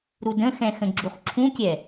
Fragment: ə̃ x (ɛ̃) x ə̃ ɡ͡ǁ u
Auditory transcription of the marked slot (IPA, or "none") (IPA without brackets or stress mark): ɛ̃